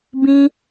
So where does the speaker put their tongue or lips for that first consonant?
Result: lips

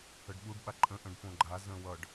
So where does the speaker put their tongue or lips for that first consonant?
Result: retroflex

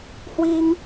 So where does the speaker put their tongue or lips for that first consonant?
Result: throat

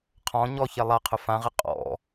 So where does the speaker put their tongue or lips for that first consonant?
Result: uvula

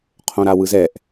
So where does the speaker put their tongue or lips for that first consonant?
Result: uvula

